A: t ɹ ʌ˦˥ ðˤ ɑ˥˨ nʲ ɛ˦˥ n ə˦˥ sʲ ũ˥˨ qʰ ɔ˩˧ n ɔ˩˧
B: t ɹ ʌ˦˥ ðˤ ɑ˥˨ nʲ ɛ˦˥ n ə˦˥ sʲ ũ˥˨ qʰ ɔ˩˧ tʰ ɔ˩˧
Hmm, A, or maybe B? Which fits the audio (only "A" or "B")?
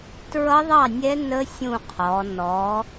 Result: A